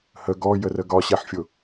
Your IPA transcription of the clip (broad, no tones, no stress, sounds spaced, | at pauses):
h ə ɡ ɔ j ə r ə ɡ ɒ ɕ ɛ ħ fʲ ʊ